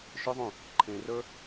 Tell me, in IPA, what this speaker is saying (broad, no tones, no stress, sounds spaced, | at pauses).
ʃ ʏ ðˤ ũ | ǃʰ ẽ r ə˞